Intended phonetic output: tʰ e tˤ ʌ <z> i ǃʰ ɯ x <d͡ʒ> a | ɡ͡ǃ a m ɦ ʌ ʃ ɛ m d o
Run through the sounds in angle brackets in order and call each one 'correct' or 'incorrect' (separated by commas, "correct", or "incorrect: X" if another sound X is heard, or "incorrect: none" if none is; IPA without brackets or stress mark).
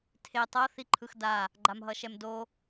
incorrect: θ, incorrect: d